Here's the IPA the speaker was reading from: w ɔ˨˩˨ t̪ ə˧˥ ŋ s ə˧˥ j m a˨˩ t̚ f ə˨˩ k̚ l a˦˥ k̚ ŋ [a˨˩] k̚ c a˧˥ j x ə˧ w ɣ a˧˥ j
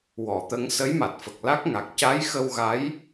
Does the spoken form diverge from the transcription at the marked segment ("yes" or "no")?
no